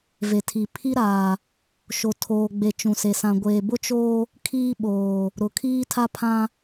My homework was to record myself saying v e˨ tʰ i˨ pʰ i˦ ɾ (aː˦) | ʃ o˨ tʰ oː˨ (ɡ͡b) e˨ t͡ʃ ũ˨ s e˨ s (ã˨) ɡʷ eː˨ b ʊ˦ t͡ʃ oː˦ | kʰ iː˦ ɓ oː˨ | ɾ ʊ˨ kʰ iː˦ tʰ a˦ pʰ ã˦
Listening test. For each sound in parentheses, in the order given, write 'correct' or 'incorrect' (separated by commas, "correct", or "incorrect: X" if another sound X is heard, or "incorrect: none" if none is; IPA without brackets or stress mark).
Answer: incorrect: aː˨, correct, correct